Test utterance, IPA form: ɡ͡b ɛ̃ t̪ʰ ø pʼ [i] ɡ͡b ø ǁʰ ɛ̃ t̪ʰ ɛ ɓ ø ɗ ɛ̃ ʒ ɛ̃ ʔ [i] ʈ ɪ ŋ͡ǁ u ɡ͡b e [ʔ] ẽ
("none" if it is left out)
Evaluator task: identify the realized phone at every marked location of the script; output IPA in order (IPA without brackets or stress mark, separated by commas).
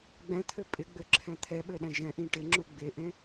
ɪ, ĩ, ʔ